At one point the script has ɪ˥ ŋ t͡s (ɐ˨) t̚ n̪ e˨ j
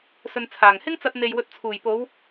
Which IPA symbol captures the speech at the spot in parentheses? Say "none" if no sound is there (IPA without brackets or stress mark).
ɐ˧